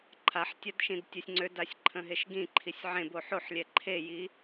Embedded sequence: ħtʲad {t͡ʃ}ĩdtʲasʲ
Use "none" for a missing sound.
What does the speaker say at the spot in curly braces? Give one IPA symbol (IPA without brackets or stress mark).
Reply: ʃ